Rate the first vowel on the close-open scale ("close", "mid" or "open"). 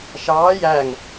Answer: open